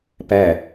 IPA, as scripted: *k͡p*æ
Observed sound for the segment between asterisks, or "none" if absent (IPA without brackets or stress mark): p